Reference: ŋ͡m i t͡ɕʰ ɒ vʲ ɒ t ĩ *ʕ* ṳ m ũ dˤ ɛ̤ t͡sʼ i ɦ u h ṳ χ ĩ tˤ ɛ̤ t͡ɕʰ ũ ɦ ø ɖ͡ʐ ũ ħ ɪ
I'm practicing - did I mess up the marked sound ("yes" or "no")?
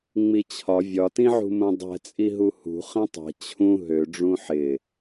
no